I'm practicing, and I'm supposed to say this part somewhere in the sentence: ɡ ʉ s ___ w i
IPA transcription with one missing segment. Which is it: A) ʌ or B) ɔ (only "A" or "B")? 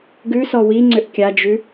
B